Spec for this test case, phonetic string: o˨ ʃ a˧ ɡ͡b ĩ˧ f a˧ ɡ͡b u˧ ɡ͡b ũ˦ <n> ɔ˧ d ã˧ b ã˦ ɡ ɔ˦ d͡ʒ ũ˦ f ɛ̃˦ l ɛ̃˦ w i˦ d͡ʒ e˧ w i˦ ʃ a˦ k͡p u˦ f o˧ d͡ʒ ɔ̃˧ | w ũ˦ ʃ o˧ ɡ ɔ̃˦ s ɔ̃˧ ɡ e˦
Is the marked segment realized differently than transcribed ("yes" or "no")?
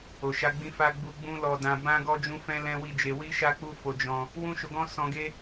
yes